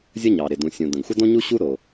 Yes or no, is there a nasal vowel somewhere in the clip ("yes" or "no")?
yes